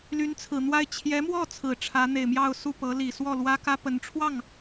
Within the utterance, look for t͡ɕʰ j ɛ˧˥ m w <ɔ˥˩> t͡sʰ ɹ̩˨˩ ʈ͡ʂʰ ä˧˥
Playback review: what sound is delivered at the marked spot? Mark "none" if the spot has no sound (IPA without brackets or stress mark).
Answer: ɔ˥˩